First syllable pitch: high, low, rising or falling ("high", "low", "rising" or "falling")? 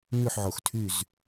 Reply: falling